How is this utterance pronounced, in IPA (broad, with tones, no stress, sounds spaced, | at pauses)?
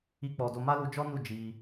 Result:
i˦ k͡p ɔ˧ d o˦ m a˦ l u˧ d͡ʒ ɔ˦ n u˦˨ d͡ʒ i˧